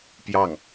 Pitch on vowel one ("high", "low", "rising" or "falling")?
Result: falling